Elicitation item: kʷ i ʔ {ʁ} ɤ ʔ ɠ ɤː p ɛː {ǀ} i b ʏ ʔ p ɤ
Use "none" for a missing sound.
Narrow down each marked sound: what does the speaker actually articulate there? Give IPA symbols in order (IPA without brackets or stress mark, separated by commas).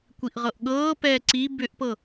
ʁ, ǀ